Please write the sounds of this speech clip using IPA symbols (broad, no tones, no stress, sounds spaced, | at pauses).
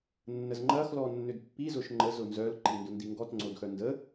nː ə z ŋ͡ǃ ɐ x l ɔ nː ʏ d pː i z ʊ ʃ ŋ͡ǃ ə z ʊ n z œ l ǃ i n d ʊ n d i ŋ ɡ ɔ t ŋ͡ǀ o d x œ n d ə